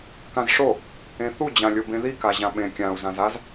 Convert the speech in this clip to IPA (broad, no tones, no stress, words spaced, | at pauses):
kãzʂo | ẽθu d͡ʑãlʲobẽði kaʑãɓẽ kʲãu̯ zãzaz